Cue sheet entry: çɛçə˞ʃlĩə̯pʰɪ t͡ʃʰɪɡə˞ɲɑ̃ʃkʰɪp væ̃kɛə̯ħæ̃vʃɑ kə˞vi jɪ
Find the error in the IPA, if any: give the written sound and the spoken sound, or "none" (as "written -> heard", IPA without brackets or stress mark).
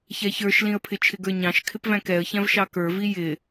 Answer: ħ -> ç